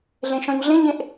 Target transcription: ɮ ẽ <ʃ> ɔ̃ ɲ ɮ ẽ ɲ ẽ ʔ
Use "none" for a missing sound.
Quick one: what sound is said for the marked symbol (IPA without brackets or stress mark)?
ʃ